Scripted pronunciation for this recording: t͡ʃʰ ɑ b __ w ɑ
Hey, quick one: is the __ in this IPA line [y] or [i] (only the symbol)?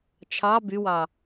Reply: y